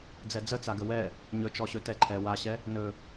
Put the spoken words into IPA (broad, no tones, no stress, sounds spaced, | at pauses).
d͡z ɛ d͡z ə t͡s a ɡ ə w ɛ | ɲ ɵ t͡ʃ ɔ ɕ ɵ t ɛ ǃʰ ɛ w a ɕ ɛ | n ɵ